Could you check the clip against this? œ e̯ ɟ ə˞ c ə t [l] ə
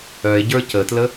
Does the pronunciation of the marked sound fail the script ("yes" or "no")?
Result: no